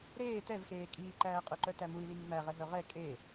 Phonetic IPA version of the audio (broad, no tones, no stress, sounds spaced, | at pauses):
ɾ eː t ɛ v x eː kʼ iː ǃ æː qʼ œ ǃ œ t æ m u i̯ l iː m æ ʁ ɛ ɦ œ ʁ ɛ kʼ e